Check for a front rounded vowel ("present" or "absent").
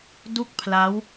absent